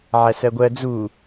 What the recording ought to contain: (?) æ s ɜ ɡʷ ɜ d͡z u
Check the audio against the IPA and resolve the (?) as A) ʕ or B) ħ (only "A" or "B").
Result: A